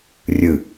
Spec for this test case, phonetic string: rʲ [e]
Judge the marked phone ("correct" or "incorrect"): incorrect